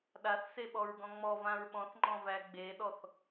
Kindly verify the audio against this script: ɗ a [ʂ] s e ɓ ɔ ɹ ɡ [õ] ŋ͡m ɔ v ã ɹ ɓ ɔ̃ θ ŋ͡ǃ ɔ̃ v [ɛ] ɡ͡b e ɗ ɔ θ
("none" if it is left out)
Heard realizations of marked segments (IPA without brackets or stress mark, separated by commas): θ, ɔ̃, æ